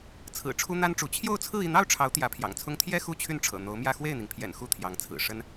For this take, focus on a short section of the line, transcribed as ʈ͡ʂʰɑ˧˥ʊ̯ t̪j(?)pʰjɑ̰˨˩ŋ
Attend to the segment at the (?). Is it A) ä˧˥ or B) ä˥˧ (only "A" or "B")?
A